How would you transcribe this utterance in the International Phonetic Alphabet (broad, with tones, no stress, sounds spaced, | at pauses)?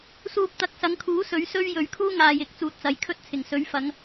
s uː˨ p̚ t̪ ɐ˨˥ k̚ s ɐ˨˧ ŋ kʰ uː˨˥ s ɵ˨˥ ɥ s ɵ˥ ɥ j ɵ˨˧ ɥ kʰ uː˥ ŋ aː˨ j ɪ˨˥ k̚ t͡s uː˨ t̚ t͡s ɐ˨ j kʰ ɵ˥ t̚ t͡sʰ ɪ˨˩ ŋ s ɵ˨˥ ɥ f ɐ˨˧ ŋ